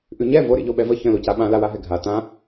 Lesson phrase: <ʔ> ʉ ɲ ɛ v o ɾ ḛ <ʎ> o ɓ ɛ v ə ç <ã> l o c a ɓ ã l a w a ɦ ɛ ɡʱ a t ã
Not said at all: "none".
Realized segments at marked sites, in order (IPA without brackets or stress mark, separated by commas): ʔ, ʎ, ə̃